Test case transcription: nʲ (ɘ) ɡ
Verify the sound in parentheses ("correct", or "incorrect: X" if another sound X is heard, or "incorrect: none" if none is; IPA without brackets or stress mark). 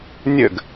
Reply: correct